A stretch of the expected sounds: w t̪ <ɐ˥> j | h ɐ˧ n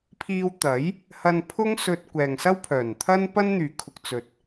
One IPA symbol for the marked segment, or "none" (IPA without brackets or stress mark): ɐ˨˥